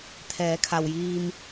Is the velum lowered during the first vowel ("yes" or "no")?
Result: no